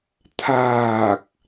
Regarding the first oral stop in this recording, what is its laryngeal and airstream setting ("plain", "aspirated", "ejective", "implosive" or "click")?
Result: aspirated